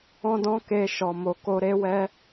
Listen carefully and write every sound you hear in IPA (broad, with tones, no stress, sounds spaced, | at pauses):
ɔ̃˦ d ɔ̃˦ k e˧ ʃ ɔ˨ m o˨ k o˧ ɾ e˦ w ɛ˦